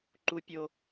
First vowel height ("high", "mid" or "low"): high